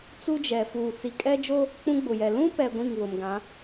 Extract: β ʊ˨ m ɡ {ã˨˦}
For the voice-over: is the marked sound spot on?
yes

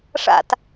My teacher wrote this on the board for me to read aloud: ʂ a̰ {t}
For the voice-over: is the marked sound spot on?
yes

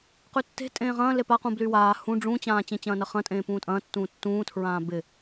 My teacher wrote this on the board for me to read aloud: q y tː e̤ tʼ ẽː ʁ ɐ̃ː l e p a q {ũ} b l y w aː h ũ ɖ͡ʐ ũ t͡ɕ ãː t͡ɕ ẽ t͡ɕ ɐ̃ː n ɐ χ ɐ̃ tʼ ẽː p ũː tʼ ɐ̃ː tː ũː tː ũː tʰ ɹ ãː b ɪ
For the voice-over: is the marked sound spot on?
yes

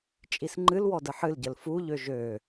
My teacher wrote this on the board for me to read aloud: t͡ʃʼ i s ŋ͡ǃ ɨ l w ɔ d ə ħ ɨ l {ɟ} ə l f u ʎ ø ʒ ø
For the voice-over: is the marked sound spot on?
yes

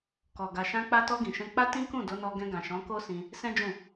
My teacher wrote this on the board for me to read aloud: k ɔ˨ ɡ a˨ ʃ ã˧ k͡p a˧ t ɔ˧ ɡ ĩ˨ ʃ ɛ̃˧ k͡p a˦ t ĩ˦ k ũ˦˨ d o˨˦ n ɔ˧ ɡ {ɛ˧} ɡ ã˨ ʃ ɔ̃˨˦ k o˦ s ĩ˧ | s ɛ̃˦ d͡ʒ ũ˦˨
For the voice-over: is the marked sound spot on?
no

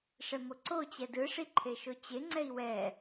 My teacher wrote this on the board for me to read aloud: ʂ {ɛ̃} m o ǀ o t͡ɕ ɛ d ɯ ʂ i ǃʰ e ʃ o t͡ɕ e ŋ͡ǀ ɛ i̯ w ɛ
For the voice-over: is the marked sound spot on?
no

